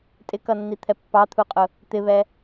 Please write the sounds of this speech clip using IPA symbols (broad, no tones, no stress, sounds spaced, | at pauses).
tʼ ɪ k ʌ nː i t̪ʰ ɛ pː ɑ t̪ʰ u qʼ ʊ | t̪ ɪ β ɛ